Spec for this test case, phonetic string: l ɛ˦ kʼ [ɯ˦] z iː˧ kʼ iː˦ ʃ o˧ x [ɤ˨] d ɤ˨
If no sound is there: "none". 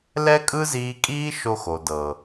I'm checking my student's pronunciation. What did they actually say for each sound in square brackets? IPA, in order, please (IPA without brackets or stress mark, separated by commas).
ɯ˦, o˨